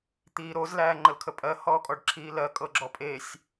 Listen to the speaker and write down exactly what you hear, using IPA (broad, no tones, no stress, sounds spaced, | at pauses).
t̪ iː ɾ o z l æː ŋ͡ǃ ə l kʰ ə pʼ ɜ h ɔː kʼ ɔ ɖ ǁʰ iː l ɜ kʼ ɤ ɡ͡ǁ ɔ pʼ e sʲ